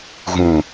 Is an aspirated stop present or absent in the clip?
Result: absent